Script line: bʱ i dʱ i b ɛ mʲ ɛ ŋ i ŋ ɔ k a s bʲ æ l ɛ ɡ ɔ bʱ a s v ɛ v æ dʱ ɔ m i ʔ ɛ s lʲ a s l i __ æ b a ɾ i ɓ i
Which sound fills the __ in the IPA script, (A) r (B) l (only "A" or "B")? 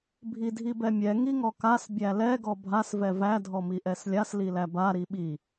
B